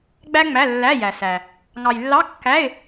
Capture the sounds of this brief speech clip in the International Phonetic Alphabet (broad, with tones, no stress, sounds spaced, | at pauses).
ɡ͡b æ˥ ŋ͡m æ˧˥˧ lː æ˧˥˧ j æ˨ s æ˨ | ŋ ɑ˨ j lː ɑ˧˥˧ kː æ˧˥˧ ɪ̯